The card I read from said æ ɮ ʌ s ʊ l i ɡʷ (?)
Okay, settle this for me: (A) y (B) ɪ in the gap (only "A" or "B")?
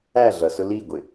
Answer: B